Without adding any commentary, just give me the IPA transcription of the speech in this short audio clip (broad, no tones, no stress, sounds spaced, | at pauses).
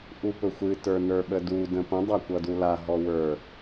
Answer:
ʔ u p ɵ xʷ ɨ t ə˞ n ə˞ ɓ ə d u d ə̃ p ə̃ dˤ a kʷ ʌ d u l a ɦ ɔ w ə˞